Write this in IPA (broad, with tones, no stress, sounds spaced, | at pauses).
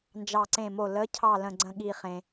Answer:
n d͡ʒ ɑ˧˩ ǀ ẽ˧˩ m o˧˩ l ə˨˦ cʰ ɑ˥˨ l ə̃˧˩ ɡ͡ǀ ə̃˥˨ ɠ i˧˩ χ ẽ˩